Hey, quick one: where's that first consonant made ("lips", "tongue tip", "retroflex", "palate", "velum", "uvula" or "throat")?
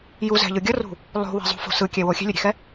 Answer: palate